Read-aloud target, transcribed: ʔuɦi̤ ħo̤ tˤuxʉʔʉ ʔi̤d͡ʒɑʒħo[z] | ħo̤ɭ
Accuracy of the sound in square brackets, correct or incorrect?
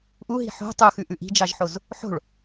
correct